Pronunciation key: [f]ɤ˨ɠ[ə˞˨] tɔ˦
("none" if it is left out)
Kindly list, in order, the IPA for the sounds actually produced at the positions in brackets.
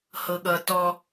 h, ʌ˨

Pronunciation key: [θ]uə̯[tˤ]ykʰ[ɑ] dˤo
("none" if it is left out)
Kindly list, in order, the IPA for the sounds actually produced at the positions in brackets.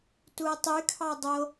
t, tˤ, ɑ

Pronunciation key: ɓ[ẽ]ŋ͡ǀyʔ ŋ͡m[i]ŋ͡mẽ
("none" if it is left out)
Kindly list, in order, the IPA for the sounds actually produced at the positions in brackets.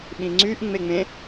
ĩ, e

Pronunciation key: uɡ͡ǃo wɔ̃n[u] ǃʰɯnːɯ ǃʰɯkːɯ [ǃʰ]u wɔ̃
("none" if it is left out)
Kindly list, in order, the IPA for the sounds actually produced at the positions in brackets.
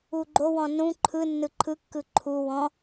ũ, ǃʰ

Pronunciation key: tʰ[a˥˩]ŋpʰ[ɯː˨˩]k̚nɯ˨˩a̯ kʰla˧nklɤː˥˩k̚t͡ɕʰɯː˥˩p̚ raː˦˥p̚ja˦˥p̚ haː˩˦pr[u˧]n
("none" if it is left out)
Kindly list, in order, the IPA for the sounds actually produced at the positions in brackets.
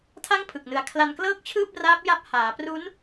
a˥˩, ɯ˨˩, u˦˥

